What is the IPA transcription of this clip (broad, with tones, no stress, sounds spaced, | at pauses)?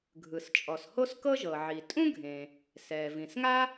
ɡʱ ɯ˩ s t͡ʃʼ ɔ˩ s h o˥ s k ɤ˥ ʒ ɤ˩ ʕ i˩ tʼ ũ˥ ɡʱ ẽː˩ | s ɛː˩ v ĩ˩ s ŋ a˥